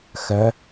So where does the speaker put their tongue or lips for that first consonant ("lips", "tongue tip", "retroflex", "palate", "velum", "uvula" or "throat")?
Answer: velum